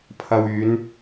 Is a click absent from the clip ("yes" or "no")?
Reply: yes